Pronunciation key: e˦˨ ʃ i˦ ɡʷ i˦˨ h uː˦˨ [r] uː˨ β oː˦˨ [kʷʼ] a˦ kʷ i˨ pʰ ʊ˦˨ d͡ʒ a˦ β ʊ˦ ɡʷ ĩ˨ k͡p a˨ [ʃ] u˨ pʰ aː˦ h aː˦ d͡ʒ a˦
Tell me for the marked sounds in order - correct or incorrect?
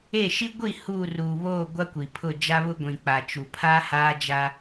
correct, incorrect: ɡʷ, incorrect: t͡ʃ

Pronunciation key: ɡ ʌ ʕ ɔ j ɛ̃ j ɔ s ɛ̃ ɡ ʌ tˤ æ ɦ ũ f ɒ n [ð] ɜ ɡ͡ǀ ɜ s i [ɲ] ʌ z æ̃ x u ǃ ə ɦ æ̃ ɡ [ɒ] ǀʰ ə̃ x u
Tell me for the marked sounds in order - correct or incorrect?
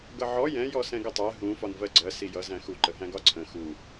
incorrect: v, incorrect: j, correct

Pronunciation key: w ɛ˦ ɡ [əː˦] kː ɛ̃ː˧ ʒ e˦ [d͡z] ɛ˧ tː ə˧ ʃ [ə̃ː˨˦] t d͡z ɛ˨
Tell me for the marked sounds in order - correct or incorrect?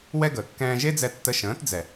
incorrect: əː˨, correct, correct

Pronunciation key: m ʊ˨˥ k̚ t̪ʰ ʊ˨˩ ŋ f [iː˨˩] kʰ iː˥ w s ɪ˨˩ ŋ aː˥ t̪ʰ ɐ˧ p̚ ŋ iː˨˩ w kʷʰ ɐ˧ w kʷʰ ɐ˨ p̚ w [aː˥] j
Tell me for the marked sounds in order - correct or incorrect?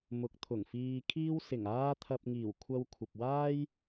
incorrect: iː˧, correct

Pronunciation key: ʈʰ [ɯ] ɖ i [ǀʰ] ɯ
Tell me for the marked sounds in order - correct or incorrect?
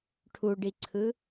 incorrect: u, correct

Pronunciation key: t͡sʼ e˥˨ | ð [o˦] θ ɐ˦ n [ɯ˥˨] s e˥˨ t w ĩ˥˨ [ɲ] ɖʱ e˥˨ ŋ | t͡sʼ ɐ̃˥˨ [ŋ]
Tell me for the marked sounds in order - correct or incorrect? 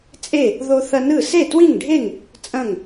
correct, correct, incorrect: ŋ, correct

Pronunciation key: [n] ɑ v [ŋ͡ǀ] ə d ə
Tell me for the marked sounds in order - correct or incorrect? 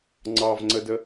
incorrect: ŋ͡ǀ, correct

